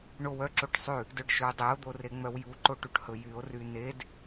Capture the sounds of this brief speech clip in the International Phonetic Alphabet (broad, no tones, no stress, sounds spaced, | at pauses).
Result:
ɳ o w œ ǁ o ʈ sˤ ʉ | d œ ɖ ʃ ɵ dˤ e o̯ d̪ o r e ŋ͡m œ w j u ǃ o ʈ u ʈ h ɵ j y o̯ r y n e d